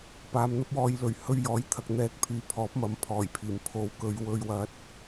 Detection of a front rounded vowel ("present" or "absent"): present